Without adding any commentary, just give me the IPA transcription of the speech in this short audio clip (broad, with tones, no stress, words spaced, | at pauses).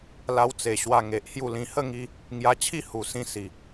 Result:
la˧wt͡se˨˩ ɕwa˧ŋe˨ʔ hju˥˧lĩ˧ hə˥˧ŋi˧ | ŋja˧t͡ɕʰi˥˧ hu˨˩sĩ˧ si˨˩